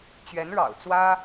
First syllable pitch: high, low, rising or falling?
rising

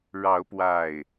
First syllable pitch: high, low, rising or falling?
rising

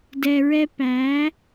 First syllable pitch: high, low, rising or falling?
low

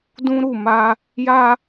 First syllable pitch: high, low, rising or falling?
high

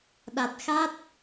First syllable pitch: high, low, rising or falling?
low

